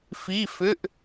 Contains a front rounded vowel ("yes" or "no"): yes